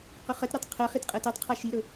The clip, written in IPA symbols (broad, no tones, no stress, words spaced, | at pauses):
qɵχɜtɾutˤ qʰɜχit qʼɜtetˤqʰa ʃiɾɵ